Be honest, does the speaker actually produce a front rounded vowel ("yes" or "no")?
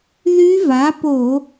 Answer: yes